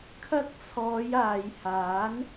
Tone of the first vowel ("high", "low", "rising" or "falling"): high